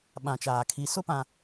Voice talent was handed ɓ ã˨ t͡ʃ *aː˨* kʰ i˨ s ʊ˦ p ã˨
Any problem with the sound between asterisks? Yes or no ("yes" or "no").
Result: no